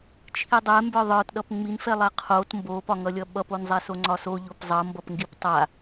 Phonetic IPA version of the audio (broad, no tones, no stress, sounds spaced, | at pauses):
t͡ʃʰ i dˤ ɛ m b ə˞ ðˤ ə˞ t ɗ ʌ p ŋ͡m i n f ɛ lˠ a qʰ o t m b o p ɒ ŋ ʌ lʲ ʌ ɓ ʌ p o n zˤ ɛ s o ŋ͡ǀ ɒ s o ʎ o p zˤ ʌ m b ʌ p ŋ ɡ i p tˤ a